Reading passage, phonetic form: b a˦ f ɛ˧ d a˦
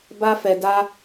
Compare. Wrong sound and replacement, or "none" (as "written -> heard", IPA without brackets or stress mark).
none